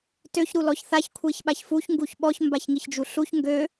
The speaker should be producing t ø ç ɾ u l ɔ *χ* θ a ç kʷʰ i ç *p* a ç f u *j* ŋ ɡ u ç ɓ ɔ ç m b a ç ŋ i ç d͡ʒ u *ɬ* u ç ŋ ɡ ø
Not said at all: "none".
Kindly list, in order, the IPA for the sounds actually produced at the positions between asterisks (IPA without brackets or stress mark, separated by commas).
ç, ɓ, ç, ɬ